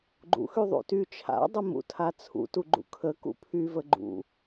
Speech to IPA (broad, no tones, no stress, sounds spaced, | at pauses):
ɡ͡ǃ ṵ x y ðˤ ṵ t y t͡ʃʰ a̰ dˤ ə m ṵ tʰ a t͡sʰ ṵ t u ɡ͡ǃ ṵ kʰ ə k ṵ pʰ y v ə ɡ͡ǃ ṵ